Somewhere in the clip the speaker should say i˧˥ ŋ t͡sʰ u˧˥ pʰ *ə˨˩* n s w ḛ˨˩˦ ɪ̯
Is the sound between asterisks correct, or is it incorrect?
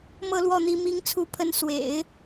incorrect